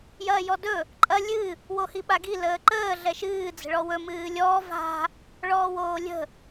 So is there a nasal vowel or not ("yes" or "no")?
no